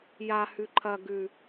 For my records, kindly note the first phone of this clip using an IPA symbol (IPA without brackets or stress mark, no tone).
j